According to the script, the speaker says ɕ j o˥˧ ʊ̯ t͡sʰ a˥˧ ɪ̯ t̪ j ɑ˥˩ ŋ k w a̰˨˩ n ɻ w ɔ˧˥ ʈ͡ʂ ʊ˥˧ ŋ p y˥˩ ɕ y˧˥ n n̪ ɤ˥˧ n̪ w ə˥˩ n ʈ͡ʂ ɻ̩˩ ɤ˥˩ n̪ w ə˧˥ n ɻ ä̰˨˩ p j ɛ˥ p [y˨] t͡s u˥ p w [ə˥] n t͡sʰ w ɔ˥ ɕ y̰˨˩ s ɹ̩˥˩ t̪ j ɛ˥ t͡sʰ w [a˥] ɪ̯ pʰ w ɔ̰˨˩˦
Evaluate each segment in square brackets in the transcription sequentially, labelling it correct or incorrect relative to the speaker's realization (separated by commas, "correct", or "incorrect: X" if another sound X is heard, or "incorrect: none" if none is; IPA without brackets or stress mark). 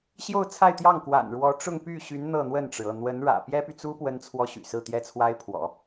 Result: correct, correct, correct